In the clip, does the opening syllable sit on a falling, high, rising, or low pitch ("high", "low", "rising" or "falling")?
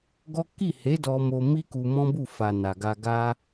high